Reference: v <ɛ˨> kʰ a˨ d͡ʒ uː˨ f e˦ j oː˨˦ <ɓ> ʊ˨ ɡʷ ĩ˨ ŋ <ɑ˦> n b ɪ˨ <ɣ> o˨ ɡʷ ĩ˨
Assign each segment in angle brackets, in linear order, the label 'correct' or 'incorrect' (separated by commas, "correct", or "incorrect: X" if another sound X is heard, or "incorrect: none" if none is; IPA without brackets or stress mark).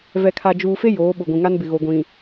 correct, correct, incorrect: a˦, correct